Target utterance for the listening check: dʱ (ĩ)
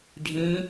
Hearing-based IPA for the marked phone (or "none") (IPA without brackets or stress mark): ĩ